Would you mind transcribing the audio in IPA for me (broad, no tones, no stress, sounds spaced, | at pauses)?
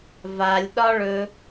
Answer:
v a lʲ ɗ ɒ ɭ ɵ